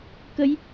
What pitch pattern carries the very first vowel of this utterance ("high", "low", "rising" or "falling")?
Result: rising